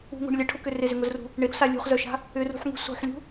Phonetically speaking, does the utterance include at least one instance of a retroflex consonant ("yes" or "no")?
yes